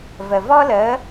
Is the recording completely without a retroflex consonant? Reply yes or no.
yes